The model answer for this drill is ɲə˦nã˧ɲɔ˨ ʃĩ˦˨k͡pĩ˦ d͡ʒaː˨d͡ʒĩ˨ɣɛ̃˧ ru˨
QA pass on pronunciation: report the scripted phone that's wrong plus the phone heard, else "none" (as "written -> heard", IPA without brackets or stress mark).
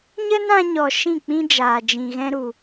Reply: r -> ɾ